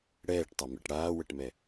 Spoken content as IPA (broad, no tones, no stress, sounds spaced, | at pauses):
ɽ ɛː ʈ tˤ a m ɛ̰ ʈ ɽ aː w ə ʈ m ɛ